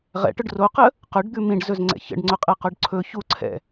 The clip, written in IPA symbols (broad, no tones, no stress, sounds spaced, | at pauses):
ʁ ɛ̰ ʈ ʊ ɖ r o q ə | q ɵ ɖ d̪ ʉ m ĩ ɖ z ɵ z ŋ͡ǀ ɛ̰ ç ə̰ ɖ ŋ͡ǀ ʊ qʼ ɛ q o ɖ ǀʰ ɵ ç u ǀʰ ɛ̰